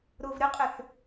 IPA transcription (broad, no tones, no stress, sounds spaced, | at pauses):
ɾ ʊː v ɾ ɪ qʼ ɪ θ